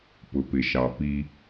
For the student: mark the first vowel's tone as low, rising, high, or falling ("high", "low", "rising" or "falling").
low